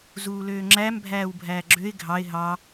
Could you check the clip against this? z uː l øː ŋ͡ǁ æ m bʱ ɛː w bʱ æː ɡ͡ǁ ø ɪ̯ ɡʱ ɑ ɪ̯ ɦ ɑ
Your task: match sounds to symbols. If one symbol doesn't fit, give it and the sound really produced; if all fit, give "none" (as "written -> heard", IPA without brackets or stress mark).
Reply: ɛː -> æː